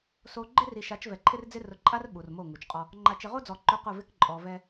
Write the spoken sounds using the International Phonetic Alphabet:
so˨ ɡ͡ǃɪ˦ri˨ʃa˨˦t͡ʃ vɛ˨ǃʰɪ˦rd͡zɪ˦ rʊ˨ǃʼa˦r ɓu˨rmo˦˨ŋu˨t͡ʃqʼɔ˦ | ŋ͡ǃa˨t͡ʃɪ˨ʁo˦d͡zɔ˨ ǃʊ˦qʊ˦˨vɪ˦k ǃʼɔ˨vɛ˦

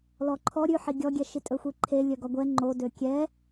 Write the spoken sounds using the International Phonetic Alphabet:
lɔǃʰɔ ɾʲʉħi ɡʲɔɡʲɛʃi tʼɵxʷiǃʰe lʲœɡɔɡʷɛ ŋ͡ǃodø kʲɛ

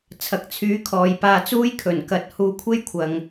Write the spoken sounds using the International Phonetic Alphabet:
t͡sʰɐ˨k̚t͡sʰyː˨˥ kʰɔː˨jpaː˧t͡suː˥jkʰɵ˨˩n kɐ˨t̚ huː˧kʷʰe˥jkʷʰɐ˨ŋ

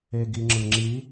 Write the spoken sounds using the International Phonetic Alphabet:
eɡiŋ͡ǁɯŋ͡ǁi

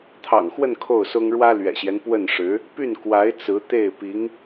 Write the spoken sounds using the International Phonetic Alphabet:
t̪ʰɑ̰˨˩ŋxwə˥˧n kʰo˥˩ʊ̯sʊ˥ŋ ɻwä˥lɥɛ̰˨˩ɕjɛ˦n pwə˥˩nʂɻ̩˧˥ | py˥˩nkwa˧˥ɪ̯ t͡sɹ̩˧˥ t̪e˥˩ɪ̯ pi˧˥ŋ

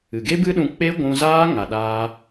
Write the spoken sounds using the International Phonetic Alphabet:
ɨ˨ɡe˦bɨ˦ɗũ˧ k͡pe˦ɡʷũ˧zaː˦ ŋa˧ɗaː˦

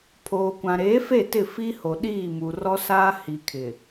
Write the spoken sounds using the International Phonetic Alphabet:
pʰoː˨kʷã˨ɾeː˨˦fe˦˨ tɪ˦˨fi˦ho˨ ɗiː˦˨mu˨rɔ˦ saː˦ hi˨kʰɪ˨

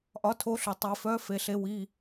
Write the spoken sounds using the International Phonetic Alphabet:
ʔɒ˨˦tʰo˨˦ɬo˩ tˤi˩fœ˨˦ fe˩˧˩ɬe˨˦ wi˩˧˩

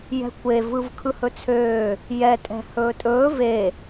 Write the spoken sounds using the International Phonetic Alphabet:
jɛ̤kʷevɯv kʰɯhɵt͡sʰøː | jɛtʼɛ̤ hɵːtʼɵː ve

